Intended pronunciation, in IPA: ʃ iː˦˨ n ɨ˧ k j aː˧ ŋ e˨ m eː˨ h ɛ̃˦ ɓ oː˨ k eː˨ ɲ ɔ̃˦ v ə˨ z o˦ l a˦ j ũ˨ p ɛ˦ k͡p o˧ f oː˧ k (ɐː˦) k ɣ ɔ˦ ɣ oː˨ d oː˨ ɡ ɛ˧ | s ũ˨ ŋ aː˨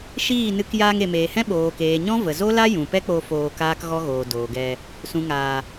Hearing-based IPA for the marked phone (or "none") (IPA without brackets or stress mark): aː˦